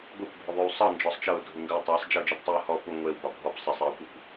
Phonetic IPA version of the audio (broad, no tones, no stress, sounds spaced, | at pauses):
ɡʷ e kʷ bʱ ʉ ðˤ ʉ w sˤ ɤ n d͡ʒ ɔ sˤ t͡ʃ ɤ ʊ̯ dʱ u ŋ ɡ ə ʊ̯ tˤ a sˤ d͡ʒ ə ʊ̯ d͡ʒ ɤ p tˤ ɤ ʊ̯ h ɔ p u ŋʷ e w b ɒ bʱ ɔ p sˤ ə sˤ e ʊ̯ kʷ e kʷ